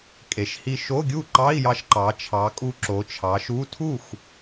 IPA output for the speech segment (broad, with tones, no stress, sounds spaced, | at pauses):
kʼ e˩˧ ʃ h i˧ ʃ o˧˥˧ ɡʲ u˥˩ ǃ ɑ˧˥˧ i̯ j ɑ˧ ʃ ǃ ɑ˩˧ t͡ʃʰ ɑ˩˧ kʼ u˧ ǁ o˩˧ t͡ʃʰ ɑ˩˧ ʃ u˧˥˧ tʰ u˥˩ x